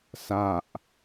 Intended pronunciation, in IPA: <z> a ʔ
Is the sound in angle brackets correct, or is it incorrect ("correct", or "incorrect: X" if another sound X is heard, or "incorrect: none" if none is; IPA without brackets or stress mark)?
incorrect: s